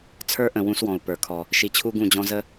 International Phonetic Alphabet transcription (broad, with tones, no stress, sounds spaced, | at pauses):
t͡sʰ ə˞˦ ʔ ə̃˨ w ũ˦ s w ɔ̃˨ u̯ p ə˞˨ kʰ ɔ˨ | ʃ i˨ t͡ɕʰ u˦ ɡ ũ˦˨ d͡ʑ ɔ̃˦ z ə˦